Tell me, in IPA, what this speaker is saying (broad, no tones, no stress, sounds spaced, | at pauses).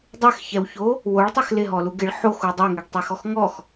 dˤ e x ç ɛ w ç o | w o ɭ tˤ ɛ x l ɪ ɦ ɔ l u ɡ ɪ ɭ ħ o x u dˤ ɛ ŋ ɛ ɡ tˤ e x ɔ x ŋ ɔ x